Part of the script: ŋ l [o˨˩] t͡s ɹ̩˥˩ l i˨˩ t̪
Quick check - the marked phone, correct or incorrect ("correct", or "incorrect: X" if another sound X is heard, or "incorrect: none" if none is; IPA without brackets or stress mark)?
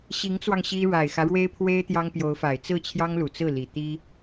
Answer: incorrect: u˨˩